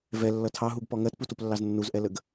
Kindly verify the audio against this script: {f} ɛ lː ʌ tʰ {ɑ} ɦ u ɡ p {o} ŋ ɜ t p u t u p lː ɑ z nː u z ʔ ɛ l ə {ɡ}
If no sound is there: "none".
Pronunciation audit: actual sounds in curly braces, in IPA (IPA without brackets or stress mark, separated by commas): v, ɑ, ɔ, ɡ